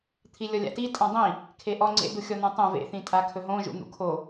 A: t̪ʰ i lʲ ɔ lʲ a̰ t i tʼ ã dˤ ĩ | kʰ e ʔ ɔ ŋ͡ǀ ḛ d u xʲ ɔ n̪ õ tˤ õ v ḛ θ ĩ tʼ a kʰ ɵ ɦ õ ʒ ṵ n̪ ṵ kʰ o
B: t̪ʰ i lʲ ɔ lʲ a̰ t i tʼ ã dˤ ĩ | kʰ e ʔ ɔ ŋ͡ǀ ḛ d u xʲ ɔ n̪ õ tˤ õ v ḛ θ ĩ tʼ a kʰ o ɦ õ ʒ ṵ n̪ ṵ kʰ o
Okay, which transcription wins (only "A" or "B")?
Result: A